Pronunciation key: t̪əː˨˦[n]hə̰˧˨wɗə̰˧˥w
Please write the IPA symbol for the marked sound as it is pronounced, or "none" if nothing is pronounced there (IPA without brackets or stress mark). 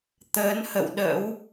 n